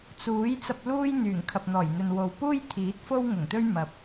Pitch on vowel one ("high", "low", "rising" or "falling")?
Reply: rising